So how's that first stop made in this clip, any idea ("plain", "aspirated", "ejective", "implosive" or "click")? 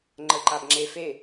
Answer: click